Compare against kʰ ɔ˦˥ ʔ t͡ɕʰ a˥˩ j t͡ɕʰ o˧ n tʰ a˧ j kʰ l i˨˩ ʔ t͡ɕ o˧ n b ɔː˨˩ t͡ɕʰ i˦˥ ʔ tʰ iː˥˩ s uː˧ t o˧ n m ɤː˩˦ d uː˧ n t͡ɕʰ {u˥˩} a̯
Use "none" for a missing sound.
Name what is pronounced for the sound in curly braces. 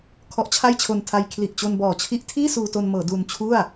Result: u˥˩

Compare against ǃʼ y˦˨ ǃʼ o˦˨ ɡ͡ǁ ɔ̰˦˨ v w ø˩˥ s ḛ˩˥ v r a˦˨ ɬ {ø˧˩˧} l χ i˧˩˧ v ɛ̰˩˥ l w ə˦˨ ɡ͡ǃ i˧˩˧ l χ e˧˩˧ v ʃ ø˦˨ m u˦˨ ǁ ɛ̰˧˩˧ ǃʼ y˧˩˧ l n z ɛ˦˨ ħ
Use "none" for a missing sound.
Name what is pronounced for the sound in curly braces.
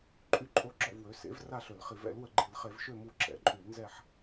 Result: ø˧˩˧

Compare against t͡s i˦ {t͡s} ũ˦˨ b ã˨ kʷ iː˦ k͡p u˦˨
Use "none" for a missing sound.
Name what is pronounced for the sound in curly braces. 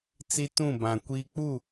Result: t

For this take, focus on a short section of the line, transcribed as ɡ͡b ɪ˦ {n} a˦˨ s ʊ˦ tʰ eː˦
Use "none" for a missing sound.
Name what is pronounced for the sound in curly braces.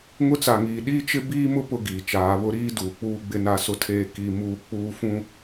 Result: n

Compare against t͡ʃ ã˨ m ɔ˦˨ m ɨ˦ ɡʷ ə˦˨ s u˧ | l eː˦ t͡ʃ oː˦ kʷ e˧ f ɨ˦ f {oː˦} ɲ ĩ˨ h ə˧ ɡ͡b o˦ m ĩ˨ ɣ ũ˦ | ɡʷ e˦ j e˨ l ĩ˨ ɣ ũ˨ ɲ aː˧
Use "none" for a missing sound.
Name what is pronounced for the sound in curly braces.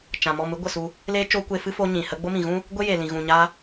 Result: o˦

